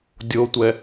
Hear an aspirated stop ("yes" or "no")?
no